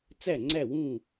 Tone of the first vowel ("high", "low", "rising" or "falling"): falling